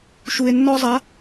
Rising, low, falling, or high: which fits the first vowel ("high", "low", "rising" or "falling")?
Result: low